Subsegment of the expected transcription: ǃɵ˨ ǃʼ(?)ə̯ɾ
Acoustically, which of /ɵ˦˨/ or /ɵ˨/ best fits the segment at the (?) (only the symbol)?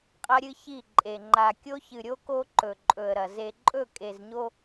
ɵ˨